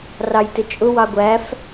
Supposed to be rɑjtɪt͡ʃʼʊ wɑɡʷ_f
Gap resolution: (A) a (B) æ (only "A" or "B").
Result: B